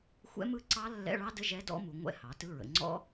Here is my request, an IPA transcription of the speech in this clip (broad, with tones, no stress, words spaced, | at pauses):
xʷɛ̰˦˥mɯ˦˥ǀɑ˦˥ lːɛ̰˧˥˧ɭɑ˦˥də˧˥˧ ʒɛ˦˥dɔ̰˦˥mu˩˧ŋʷɛ̰˦˥ hɑ˩˧tɯ˧˥˧ɹə̰˩˧ ŋ͡ǀɔ̰˦˥